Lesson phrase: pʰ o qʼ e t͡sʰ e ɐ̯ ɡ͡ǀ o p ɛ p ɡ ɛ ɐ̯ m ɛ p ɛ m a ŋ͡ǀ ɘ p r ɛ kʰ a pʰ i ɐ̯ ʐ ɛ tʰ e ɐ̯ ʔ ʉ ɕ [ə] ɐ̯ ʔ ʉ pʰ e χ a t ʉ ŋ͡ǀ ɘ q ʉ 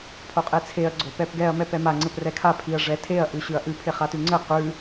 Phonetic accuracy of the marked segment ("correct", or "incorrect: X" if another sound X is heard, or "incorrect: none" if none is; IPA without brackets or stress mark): incorrect: ʉ